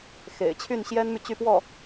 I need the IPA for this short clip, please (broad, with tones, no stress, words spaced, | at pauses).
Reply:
xḛ˨˩ɪ̯ t͡ɕʰy˥˩nɕjɛ˥nmy˨ t͡ɕy˥˧pwɔ˥˩